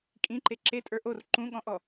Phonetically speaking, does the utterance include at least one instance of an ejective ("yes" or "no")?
yes